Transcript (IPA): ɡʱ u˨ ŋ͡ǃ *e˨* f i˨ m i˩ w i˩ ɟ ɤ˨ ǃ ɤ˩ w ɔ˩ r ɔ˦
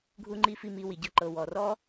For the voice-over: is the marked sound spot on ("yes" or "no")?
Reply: no